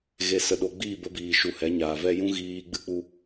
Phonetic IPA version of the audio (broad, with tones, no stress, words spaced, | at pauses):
ɣe˨sə˨ɗo˨ ɡ͡biː˦˨bə˧biː˨ ʃu˨ hɛ˨˦ɲaː˨vɛ˦ jũ˦ɣiː˧ ɡ͡bɨ˦ k͡pu˦